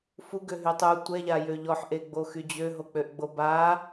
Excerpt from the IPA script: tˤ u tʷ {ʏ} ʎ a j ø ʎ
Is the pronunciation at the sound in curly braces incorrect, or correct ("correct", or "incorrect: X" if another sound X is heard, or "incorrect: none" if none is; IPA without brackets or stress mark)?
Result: incorrect: ɛ